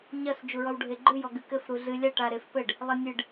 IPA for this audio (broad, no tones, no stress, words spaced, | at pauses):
ɲɐs d͡ʒuɹɔwɖʱeɡ͡ǃɨ jɔɡɨkɘf ɾuɮɨ lʲaʈ aɾefpɘɖ | lˠenʲɨɖ